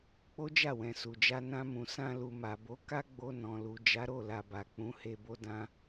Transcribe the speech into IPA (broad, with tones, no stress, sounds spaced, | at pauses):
k͡p o˦ d͡ʒ a˦˨ w ɛ̃˨ s u˨ d͡ʒ a˧ n ã˧ m ũ˨ s ã˧ l u˨ m a˨ b o˨˦ k a˦ ɡ͡b o˧ n ɔ̃˨ l u˨ d͡ʒ a˨˦ ɾ o˦˨ l a˨ b a˨ k͡p ũ˨˦ h e˧ b o˧ d ã˧